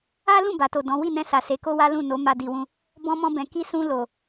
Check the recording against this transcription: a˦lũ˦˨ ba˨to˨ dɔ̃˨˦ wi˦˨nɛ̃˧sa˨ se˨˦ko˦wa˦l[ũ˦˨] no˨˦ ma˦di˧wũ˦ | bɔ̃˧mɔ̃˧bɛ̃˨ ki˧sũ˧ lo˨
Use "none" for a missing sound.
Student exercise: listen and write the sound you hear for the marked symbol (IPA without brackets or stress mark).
ũ˦˨